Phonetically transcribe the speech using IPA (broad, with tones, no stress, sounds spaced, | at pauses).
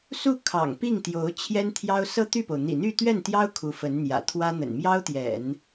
s u˥˩ kʰ ɑ̰˨˩ ŋ p i˥˩ ŋ t̪ j o˧˥ ʊ̯ t͡ɕʰ j ɛ˥ n t̪ʰ j ɑ˥ ʊ̯ s ɤ˥ t̪ y˥˩ p o˩ ʊ̯ n̪ ḭ˨˩ n̪ y˥˧ t̪ ɥ ɛ˥˩ n t̪ j ɑ˥ ʊ̯ kʰ u˧˥ f ə˧˥ n n̪ j ä̰˨˩ t̪ʰ w ä˥ n̪ ə̰˨˩ n m j ɑ˥ ʊ̯ t̪ j ɛ̰˨˩˦ n